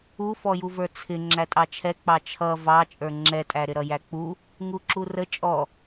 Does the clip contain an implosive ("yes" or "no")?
no